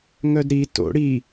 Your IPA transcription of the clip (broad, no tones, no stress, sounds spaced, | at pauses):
ŋ œ d ɾ i t o̰ ɽ i